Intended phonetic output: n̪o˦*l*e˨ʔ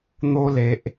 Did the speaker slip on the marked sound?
no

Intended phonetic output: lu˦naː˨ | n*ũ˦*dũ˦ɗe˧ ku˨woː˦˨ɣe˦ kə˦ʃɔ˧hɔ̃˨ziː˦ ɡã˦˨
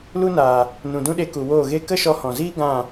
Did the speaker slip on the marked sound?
yes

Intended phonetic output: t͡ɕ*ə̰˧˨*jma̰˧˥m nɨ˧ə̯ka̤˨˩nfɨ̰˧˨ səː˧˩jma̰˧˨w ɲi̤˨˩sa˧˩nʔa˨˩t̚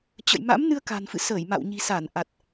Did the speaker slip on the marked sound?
no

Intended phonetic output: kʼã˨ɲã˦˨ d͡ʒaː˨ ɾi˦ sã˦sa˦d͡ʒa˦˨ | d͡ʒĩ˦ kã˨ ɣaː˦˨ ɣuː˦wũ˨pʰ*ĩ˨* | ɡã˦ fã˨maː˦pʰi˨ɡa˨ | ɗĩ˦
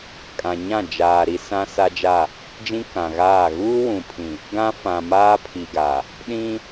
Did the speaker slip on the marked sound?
no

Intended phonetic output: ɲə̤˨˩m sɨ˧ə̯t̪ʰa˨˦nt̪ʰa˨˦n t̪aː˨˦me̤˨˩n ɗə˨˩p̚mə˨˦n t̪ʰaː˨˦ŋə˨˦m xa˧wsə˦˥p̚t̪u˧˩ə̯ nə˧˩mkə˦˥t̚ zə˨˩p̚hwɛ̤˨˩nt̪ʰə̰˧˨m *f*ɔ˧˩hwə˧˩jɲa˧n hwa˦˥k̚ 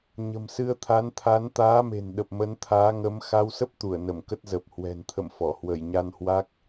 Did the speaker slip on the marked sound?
no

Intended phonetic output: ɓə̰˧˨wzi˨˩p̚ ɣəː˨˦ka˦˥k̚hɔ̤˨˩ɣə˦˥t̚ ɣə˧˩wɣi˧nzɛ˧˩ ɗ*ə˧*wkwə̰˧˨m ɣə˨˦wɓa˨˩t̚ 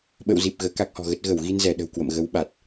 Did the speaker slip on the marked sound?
yes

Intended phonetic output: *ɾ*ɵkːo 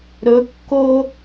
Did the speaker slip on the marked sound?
no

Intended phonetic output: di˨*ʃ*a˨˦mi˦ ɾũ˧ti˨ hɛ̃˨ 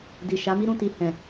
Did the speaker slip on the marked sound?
no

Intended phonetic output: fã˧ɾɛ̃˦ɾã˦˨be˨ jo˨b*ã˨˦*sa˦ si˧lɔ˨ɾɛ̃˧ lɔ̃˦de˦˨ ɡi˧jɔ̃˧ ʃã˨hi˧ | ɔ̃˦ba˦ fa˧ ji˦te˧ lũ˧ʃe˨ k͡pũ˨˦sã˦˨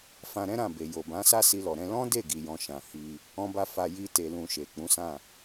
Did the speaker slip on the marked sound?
no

